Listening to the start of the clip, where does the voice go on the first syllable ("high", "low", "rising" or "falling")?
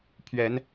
rising